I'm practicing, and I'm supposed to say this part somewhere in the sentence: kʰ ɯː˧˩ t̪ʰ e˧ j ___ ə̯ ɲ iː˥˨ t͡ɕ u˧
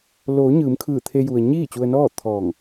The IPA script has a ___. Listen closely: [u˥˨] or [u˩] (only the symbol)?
u˩